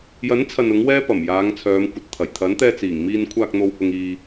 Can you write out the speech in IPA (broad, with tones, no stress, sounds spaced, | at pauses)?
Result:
j ɐ˨˥ n t͡sʰ ɐ˨ n ʊ˨˥ ŋ w ɛː˥ p ɐ˨˩ m j aː˨˧ ŋ t͡sʰ œː˨˧ m kʷ ɐ˨ t̚ t̪ʰ ɐ˨˩ j t̪ʰ ɐ˨˥ n t̪ ɛː˧ t͡s iː˨˩ ŋ m iː˧ n kʷʰ aː˧ k̚ n̪ o˨ w h ʊ˨ ŋ iː˨